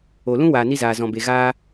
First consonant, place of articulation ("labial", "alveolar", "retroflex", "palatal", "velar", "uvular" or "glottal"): alveolar